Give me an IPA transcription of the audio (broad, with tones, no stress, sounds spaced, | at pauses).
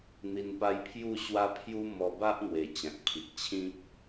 n̪ i˧ n p a˦ j pʰ j u˥˧ ɕ w a˦ pʰ j u˦ m ɔ˧ b a˦ ʔ n̪ w e˨˩ t͡ɕ ã˨ k̚ pʰ i˨ k̚ t͡ɕʰ ĩ˦ k̚